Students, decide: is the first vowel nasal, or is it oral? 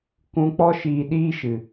nasal